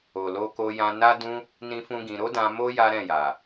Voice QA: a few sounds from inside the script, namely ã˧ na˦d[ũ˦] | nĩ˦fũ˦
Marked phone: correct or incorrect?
correct